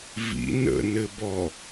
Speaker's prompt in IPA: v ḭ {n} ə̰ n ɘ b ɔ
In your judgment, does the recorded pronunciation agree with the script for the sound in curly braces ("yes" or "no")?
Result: yes